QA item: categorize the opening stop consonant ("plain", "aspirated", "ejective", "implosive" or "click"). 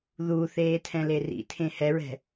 aspirated